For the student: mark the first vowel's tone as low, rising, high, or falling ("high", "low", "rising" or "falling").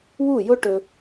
falling